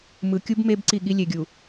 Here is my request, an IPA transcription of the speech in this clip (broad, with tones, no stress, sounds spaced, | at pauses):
m ɯ˨ kʲ u˦ b m e˦ b ǀ i˦˨ ɠ i˦ lʲ e˨ ɡʲ u˨